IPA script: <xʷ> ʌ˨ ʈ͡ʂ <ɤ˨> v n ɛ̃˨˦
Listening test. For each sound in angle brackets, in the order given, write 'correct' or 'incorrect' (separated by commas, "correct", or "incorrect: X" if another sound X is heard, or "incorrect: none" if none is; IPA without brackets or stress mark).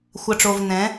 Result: correct, incorrect: o˨